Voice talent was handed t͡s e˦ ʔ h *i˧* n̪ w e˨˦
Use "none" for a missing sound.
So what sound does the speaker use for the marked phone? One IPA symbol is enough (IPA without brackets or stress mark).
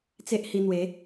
i˧